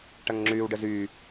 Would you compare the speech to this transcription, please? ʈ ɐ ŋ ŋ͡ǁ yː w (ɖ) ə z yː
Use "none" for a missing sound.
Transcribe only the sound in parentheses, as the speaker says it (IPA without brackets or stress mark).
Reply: ɖ